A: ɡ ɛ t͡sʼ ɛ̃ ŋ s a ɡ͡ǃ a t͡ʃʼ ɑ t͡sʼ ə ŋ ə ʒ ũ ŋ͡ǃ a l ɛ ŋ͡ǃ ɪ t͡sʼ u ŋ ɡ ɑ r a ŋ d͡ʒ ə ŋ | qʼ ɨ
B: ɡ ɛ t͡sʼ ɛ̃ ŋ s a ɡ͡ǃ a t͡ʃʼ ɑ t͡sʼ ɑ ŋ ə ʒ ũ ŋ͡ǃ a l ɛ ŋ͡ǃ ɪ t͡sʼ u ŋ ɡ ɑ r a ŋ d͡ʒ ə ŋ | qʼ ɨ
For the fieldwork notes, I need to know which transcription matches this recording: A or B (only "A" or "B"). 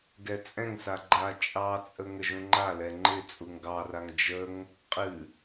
A